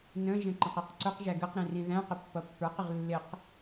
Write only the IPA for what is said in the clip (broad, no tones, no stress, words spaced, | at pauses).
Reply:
nə̃ʒə̃ ǃə̃qiqǀʊqʒæ ɡəq ɾĩrĩðæ̃qɪ pːʌpːə˞qɪʁ lːɪq